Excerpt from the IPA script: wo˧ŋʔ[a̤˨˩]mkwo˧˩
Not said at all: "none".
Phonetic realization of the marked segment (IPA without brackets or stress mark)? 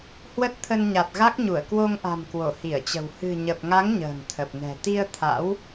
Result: a̤˨˩